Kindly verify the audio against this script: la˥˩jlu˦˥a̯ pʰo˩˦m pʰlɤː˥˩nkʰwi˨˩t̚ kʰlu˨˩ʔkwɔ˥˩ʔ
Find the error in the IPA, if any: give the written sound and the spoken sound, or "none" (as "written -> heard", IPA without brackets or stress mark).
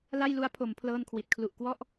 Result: none